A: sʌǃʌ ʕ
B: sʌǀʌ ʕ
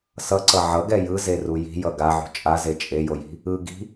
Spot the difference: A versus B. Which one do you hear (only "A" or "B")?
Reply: B